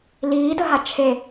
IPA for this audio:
liːdəɦa t͡ʃʰe

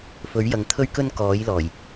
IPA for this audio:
fɵ˨˥ɥjɐ˨ŋt̪ʰɵ˥ɥ kɵ˥nkɔː˨˥jlɔː˨˩j

